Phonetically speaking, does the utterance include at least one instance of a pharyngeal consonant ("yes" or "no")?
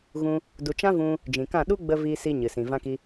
no